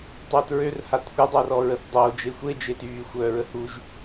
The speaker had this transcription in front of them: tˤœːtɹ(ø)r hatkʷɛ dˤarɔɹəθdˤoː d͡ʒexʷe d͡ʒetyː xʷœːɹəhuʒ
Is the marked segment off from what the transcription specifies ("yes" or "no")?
no